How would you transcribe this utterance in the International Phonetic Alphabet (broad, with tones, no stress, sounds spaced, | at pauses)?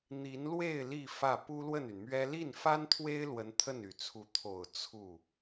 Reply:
n̪ i˧˥ n l w e˥˧ ɪ̯ l i˥˧ f ä˥˩ p u˥ l w ə˥˩ n y˩ n m ɥ ɛ˥ l i˥˩ n f a˥ n t̪ʰ w e˥ ɪ̯ l w ə˧˥ n t̪ʰ ə˥˩ n y˨˩ t͡sʰ u˧˥ t̪ʰ o˨˩ ʊ̯ t͡sʰ u˥˩